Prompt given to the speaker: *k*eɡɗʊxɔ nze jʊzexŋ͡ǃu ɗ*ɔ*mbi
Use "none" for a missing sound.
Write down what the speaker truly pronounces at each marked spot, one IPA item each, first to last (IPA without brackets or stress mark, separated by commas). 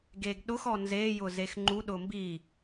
ɡ, ʊ